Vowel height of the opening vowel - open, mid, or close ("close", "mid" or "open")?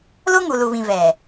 mid